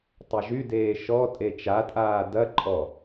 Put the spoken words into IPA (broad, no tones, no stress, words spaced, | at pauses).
tˤɐʒydeː ʃɔ tʼet͡ʃatʼaː dɐǃʼɔ